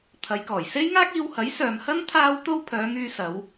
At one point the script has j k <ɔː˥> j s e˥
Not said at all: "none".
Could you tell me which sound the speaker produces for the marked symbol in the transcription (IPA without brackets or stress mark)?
ɔː˨˩